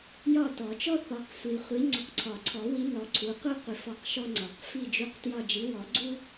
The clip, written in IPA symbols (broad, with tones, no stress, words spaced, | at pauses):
jɒ˦˨tɔ˨˩˦t͡ʃɔ˦ θɔ˨˦qsʷi˨ χʷi˨˦ ŋ͡ǀɔ˨qǀʰɒ˨˩˦ǀʰɔ˨˩˦wi˨˦ nɔ˨˦ǀʰu˨˦ qʷi˦ qʷi˨˦fɔ˦˨qʃɔ˦ŋ͡ǀɒ˨˩˦q fi˦˨d͡ʒu˦˨qtjɒ˦˨ d͡ʒi˨˦wɔ˨˩˦ɡ͡ǀu˦